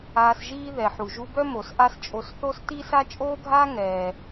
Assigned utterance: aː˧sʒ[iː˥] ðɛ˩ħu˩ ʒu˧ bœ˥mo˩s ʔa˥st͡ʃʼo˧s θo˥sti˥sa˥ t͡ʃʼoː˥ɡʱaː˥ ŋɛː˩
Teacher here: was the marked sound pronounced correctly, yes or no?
yes